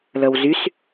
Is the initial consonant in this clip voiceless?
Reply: no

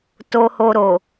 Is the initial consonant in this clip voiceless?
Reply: yes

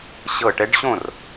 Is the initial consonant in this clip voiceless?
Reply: yes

